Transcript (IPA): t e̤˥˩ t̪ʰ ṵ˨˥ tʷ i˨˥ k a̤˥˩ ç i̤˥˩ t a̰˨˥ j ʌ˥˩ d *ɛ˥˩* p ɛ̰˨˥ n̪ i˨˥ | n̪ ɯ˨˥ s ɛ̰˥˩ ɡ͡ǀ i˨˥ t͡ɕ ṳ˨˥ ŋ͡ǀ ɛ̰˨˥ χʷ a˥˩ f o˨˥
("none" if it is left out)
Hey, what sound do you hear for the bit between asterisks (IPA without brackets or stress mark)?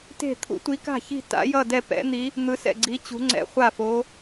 ɛ˥˩